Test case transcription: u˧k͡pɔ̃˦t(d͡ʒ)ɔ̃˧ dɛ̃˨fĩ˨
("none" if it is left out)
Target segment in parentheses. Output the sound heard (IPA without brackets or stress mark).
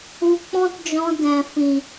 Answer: d͡ʒ